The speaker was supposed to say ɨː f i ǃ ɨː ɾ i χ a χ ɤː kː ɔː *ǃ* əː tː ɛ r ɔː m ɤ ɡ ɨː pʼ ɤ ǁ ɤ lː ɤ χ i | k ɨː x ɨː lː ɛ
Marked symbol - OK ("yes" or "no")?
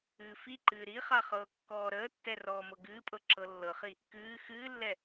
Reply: no